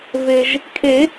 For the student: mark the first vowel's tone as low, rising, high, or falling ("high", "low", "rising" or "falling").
low